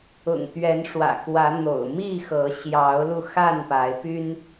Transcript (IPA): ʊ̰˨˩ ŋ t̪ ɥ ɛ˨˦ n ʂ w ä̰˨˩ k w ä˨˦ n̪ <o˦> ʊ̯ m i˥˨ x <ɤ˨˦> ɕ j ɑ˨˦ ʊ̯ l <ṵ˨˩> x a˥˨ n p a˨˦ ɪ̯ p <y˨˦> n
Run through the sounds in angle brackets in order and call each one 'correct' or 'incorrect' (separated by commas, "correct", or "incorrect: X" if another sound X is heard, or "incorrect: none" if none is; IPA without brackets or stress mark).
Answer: incorrect: o̰˨˩, correct, incorrect: u˧, incorrect: y˦